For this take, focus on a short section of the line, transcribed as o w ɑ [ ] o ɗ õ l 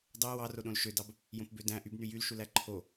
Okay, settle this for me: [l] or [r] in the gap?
r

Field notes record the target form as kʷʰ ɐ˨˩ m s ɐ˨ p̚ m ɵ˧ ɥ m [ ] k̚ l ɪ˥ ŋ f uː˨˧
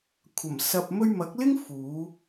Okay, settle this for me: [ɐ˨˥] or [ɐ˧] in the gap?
ɐ˨˥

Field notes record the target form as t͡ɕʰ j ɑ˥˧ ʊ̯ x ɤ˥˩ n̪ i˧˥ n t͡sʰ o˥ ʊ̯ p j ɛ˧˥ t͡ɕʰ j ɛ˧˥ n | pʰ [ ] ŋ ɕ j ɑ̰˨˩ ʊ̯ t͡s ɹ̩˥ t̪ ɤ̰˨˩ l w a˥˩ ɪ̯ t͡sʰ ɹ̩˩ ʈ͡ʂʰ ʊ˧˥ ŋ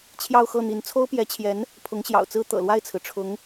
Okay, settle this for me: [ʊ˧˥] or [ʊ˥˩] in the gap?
ʊ˧˥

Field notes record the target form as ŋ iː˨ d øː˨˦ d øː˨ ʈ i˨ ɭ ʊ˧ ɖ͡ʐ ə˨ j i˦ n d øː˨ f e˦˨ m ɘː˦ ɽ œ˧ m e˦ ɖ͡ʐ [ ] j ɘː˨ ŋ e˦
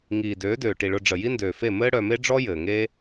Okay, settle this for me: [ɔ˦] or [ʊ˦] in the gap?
ɔ˦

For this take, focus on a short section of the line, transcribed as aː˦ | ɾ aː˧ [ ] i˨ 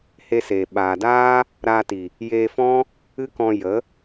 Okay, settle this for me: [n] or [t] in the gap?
t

